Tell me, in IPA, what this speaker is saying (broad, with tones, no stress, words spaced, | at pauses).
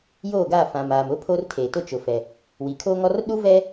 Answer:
joː˦˨ɡa˦˨fã˨m aː˨mʊ˦ pʰo˦rtʰeː˨tʊ˦ t͡ʃʊ˨fɛ˨ | wi˨kʰo˦ŋɔ˦r ɗu˦vɛ˦